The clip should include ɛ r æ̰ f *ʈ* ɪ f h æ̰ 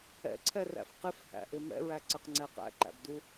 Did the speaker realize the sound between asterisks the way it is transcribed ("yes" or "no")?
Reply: no